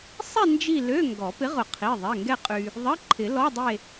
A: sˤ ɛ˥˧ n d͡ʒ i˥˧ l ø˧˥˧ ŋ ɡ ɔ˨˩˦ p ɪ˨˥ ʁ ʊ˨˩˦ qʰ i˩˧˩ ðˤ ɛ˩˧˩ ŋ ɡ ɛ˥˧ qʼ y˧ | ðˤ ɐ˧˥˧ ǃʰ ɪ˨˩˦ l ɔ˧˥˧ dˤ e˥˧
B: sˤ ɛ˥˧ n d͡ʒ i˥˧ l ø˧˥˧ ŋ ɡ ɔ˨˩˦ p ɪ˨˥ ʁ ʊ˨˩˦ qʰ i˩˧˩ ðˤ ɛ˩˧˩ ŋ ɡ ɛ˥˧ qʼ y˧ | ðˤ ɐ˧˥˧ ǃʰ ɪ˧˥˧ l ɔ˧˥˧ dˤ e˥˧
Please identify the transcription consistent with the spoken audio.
A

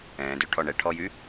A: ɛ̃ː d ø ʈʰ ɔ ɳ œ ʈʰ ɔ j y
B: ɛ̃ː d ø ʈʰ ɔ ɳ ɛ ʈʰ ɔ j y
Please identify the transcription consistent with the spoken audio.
B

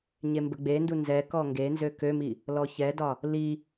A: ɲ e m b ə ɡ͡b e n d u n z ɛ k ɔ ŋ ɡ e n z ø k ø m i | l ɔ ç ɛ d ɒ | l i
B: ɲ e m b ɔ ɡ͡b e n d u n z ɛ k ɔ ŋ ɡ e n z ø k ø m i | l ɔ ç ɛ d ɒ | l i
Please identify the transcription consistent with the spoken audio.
A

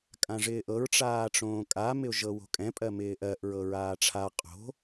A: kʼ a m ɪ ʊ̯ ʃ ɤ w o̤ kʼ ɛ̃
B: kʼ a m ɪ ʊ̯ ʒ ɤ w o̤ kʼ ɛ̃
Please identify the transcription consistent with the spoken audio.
B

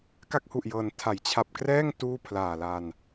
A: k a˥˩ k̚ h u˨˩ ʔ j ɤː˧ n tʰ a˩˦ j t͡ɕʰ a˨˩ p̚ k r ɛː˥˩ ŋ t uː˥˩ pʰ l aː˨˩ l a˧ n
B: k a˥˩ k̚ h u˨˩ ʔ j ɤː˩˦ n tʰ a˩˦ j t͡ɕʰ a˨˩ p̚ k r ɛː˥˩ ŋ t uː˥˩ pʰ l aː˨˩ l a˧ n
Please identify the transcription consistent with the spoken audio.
B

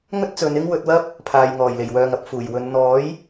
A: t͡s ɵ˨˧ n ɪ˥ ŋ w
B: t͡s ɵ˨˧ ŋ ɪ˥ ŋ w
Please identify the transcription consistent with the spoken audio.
A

